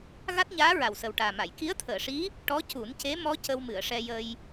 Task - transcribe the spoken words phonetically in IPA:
ɣ a˦˥ t̚ ɲ aː˧˥ ɹ a˨˩ w s ə˨˩ w ʈ aː˨˩ m a˨˩˨ j k i˧˥ ə̯ t̪ʰ əː˨˩˨ ʂ i˧˥ | ʈ ɔ˧˥ c u˨˩˦ n c e˧˥ m ɔ˧˥ c ə˧ w m ɨ˨˩˨ ə̯ ʂ ɛ˧ j ə˧ j

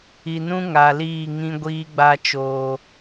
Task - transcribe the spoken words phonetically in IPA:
i˨ n ũ˦ ŋ a˨ l iː˦˨ ŋ ĩ˦ ɡʷ iː˦ ɡ͡b a˦ t͡ʃ oː˦

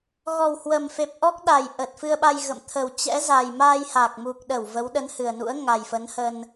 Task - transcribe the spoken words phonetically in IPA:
ɣ ɔ˨˩ w h w ə˨˩ m f e˨˩ p̚ ʔ ɔ˦˥ k̚ ɗ a˨˩ j ʔ ə˨˩ t̚ f ɨ˧ ə̯ ɓ a˧ j ɣ ə̰˧˨ m t̪ʰ ə˨˩ w t͡ɕ ɛ̰˧˥ z a˨˩ j m aː˧ j h a˨˩ k̚ m u˨˩ k̚ ɗ ə˧˩ w v ə˨˦ w ɗ ə˨˦ n h ɨ˨˩ ə̯ n ṵ˧˥ ə̯ ŋ a˨˩ j f ə˨˦ n h ə˧ n

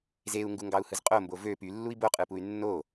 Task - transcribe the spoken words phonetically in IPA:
z e u̯ ŋ ɡ u ŋ ɡ ɑ u̯ h ɯ z qʼ o m b o v ø p y lː u i̯ b o qʼ ɯ p u y̯ nː o

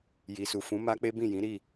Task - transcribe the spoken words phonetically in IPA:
j i˨ s u˨ f ũ˨˦ m a˦ k͡p e˦ b ĩ˦˨ j ĩ˨˦ ɾ i˦˨

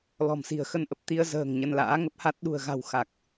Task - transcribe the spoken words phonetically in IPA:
l ɔ̤˨˩ m s i̤˨˩ ə̯ x ə˧ n ʔ ə˨˩ p̚ t̪ i˧ ə̯ z ə̤ː˨˩ ŋ ɲ ə˧ n l a̰ː˧˥ ŋ ə˦˥ p̚ h a˦˥ t̚ ɗ ṳ˨˩ ə̯ ɣ a̤˨˩ w x a˨˩ k̚

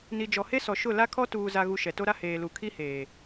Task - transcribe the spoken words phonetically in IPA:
n i˨ d͡ʒ ɔ˨ h e˦ s ɔ˨ ʃ ʊ˦˨ l a˦ kʰ ɔ˦ t uː˦ z a˦ ɣ u˦ ʃ ɛ˨ t o˦ ɾ a˦ h eː˨ l u˨ kʰ i˦ h eː˨

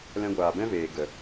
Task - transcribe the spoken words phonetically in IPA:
l ɛ̃˧ ɡʷ aː˨ b ɛ̃˦ v eː˨ ɡ ə˨

